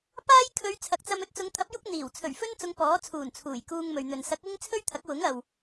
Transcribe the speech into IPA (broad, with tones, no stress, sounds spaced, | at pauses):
p aː˥ j kʰ ɵ˨˧ ɥ t͡sʰ ɐ˨˥ k̚ t͡s ɐ˧ m ɵ˨˥ t̚ t͡s ʊ˨˧ ŋ t̪ʰ ɐ˨˥ p̚ j ʊ˥ k̚ n̪ iː˨˩ w t͡sʰ ɵ˨˩ ɥ f ɵ˥ n t͡s ʊ˨˧ ŋ p ɔː˨˥ t͡sʰ uː˨˩ n t͡sʰ uː˨˩ j k uː˧ ŋ m ɵ˨ ɥ n̪ ɵ˨ n s ɐ˨˥ k̚ ɪ˥ ŋ t͡sʰ ɵ˥ ɥ t̪ʰ ɐ˨˥ k̚ w ʊ˨˥ ŋ ɐ˨ w